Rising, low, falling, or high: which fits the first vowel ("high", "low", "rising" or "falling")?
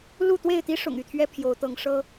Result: falling